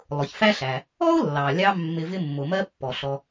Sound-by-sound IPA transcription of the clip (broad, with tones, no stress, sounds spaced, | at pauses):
lˠ ʊ˩ ç f æ˥ ɬ æ˩ | ɔ˥ ʊ̯ lː ɑ˩ lʲ ɑ˧ mː ɪ˧ v ɪ˥ mː ʊ˩ m ɜ˥ pː ɔ˩ ɬ ɔ˧